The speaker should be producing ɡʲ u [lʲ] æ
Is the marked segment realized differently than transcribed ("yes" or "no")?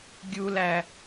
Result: yes